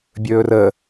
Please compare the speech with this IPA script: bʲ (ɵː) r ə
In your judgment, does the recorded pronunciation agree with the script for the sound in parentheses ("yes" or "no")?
yes